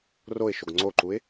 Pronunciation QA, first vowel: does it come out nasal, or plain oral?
oral